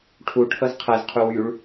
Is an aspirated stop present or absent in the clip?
present